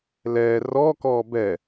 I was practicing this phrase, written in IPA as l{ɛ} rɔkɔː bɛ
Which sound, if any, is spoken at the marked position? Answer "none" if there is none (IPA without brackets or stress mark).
ɛ